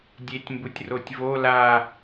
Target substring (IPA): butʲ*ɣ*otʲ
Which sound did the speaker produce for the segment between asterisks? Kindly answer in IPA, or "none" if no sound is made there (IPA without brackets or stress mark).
r